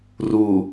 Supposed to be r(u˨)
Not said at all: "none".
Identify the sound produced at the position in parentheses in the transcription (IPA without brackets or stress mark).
u˨